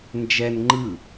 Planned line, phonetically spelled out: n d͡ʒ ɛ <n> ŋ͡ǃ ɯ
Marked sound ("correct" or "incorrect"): correct